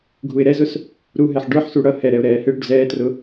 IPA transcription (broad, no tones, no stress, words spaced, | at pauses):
ɡʱuɪ̯ɾɛzʊs | ɾuɦɛħ ɖə˞ħsu ɽʌ hɛɾɛʊ̯ ɾɛːhɪɽuɖ zɛːtrʊ